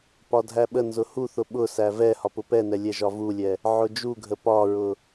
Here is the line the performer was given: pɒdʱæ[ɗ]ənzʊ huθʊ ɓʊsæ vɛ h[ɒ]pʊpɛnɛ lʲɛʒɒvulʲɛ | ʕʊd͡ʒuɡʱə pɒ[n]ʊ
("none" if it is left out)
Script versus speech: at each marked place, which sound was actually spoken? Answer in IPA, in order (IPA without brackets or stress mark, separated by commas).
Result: ɓ, ɒ, ɹ